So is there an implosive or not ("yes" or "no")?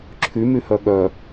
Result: yes